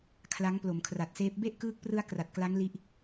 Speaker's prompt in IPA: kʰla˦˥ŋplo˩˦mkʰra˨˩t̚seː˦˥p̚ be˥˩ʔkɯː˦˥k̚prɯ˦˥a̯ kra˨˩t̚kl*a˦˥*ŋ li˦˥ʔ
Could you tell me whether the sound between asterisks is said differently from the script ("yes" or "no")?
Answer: no